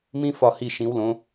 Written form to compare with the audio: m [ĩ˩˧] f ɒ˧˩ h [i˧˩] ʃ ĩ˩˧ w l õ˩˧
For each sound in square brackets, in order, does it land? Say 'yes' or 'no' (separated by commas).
no, yes